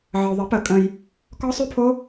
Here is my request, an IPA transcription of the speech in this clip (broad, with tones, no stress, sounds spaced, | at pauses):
ʕ ə˨ o̯ ðˤ ə˨˩˦ p ə˨˩˦ kʼ ə̃˨ j | k ɔ˦˥ sˤ ʉ˦˥ pʰ o˦˥